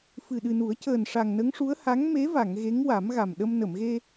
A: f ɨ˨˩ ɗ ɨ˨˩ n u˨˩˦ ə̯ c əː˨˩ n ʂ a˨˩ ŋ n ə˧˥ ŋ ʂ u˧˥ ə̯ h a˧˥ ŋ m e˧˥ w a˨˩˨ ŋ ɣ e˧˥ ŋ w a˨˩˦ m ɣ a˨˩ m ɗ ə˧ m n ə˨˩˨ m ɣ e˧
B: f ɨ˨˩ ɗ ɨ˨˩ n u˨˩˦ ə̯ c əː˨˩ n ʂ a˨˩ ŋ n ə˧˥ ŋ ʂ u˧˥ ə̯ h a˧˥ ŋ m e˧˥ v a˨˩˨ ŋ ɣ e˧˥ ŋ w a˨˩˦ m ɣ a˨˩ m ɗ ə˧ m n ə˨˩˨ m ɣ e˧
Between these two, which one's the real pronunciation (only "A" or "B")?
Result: B